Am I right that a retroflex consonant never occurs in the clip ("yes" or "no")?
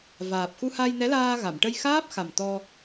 no